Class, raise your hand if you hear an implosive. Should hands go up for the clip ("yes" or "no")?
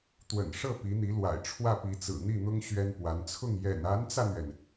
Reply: no